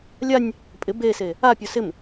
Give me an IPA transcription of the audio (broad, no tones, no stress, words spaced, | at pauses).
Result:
lʲanʲ | pʼɪ bese | apʲo sɪm